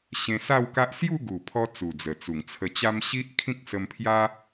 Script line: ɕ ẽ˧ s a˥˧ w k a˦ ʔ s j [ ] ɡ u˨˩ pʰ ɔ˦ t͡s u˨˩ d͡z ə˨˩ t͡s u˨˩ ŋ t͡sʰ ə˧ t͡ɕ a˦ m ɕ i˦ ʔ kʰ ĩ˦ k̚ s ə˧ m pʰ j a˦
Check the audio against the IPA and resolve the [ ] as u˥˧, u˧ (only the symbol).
u˥˧